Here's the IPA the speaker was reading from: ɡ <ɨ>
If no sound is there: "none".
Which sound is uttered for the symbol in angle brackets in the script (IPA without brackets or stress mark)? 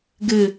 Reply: ɨ